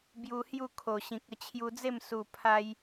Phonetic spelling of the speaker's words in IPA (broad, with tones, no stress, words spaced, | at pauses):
bju˧hju˥˧kʰo˨˩ɕĩ˨k̚ ə˧t͡ɕʰju˧d͡ze˥˧m su˨˩pʰa˧j